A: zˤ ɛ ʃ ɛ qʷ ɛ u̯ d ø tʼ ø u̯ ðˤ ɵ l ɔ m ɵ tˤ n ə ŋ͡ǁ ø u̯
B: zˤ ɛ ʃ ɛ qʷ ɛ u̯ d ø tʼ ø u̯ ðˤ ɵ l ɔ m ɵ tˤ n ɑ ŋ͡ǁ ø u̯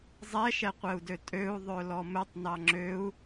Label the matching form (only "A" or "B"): B